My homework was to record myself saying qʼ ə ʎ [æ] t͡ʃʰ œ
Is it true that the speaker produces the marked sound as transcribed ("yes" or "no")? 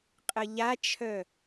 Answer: no